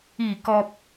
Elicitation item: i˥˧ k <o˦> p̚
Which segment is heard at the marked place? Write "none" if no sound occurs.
ɔ˦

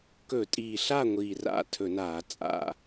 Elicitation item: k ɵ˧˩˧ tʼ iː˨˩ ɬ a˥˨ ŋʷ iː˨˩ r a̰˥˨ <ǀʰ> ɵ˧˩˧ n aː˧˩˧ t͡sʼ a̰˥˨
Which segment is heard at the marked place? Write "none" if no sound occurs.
tʰ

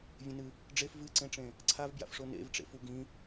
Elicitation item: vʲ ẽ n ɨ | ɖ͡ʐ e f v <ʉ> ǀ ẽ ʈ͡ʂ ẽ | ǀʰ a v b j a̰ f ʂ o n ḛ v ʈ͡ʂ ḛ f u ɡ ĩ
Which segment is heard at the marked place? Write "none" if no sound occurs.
ɨ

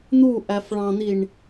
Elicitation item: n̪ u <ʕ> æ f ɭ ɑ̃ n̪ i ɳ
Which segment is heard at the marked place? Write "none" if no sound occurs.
ʔ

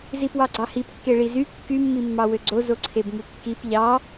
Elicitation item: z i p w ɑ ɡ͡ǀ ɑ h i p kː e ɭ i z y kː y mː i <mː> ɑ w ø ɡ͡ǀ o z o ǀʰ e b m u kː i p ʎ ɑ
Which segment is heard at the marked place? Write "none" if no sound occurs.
mː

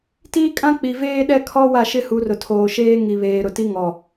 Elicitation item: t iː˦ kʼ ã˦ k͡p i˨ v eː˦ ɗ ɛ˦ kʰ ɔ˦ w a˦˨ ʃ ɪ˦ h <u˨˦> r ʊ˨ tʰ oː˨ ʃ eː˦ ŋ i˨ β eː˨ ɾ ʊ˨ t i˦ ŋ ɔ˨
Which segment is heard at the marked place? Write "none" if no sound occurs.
u˨˦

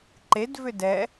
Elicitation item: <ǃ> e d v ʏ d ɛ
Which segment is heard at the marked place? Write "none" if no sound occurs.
ǃ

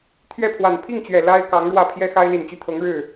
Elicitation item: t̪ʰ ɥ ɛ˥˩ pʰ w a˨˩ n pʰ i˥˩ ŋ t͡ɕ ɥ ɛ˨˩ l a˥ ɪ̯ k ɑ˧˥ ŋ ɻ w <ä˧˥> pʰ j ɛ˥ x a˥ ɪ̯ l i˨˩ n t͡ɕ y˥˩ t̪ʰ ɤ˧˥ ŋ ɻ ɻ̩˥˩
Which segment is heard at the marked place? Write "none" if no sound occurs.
ä˥˩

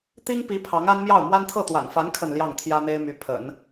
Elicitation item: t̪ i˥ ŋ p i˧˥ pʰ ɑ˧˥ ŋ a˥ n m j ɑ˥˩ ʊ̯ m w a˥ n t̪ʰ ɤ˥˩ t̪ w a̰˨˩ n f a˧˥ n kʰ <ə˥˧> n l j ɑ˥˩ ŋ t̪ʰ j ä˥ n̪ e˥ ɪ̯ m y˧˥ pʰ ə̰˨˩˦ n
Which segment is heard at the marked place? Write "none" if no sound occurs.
ə˥˧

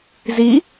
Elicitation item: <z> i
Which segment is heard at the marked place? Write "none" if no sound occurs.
z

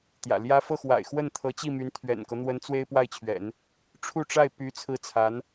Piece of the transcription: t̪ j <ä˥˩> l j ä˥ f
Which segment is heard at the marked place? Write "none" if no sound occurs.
ä̰˨˩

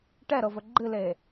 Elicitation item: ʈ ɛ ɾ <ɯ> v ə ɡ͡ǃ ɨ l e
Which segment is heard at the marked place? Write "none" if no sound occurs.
ɤ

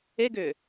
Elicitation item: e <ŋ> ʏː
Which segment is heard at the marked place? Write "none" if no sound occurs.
ɡ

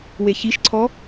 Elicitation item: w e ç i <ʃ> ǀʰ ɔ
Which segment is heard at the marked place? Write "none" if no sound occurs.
ʃ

